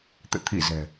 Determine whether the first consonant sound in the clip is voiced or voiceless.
voiceless